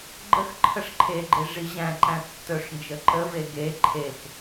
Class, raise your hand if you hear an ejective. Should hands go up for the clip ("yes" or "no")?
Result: no